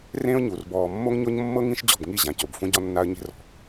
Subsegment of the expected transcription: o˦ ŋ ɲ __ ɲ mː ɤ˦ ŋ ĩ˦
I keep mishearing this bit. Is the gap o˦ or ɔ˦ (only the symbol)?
o˦